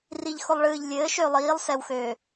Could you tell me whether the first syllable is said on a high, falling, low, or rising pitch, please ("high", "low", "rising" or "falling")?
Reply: low